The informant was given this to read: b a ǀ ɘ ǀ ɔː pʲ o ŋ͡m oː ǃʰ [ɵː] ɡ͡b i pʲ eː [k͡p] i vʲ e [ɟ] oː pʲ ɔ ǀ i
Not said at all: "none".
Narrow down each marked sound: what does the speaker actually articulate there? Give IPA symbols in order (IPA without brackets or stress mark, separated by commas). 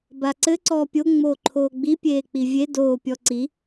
oː, k͡p, d